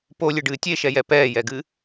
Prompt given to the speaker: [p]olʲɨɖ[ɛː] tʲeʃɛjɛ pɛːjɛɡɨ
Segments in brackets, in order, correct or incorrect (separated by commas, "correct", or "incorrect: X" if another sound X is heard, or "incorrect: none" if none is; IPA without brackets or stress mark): correct, incorrect: ɨː